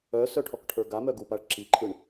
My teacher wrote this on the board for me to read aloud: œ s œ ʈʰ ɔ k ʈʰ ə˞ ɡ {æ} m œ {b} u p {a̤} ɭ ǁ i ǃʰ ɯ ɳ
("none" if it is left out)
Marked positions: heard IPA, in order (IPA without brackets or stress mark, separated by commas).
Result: a, ɡ, a